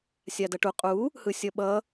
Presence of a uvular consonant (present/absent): present